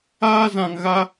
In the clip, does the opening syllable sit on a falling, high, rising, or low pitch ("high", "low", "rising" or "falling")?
high